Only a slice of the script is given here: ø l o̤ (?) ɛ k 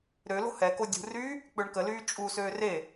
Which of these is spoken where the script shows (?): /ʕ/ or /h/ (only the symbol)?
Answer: h